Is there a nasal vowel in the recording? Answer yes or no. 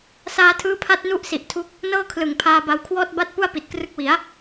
no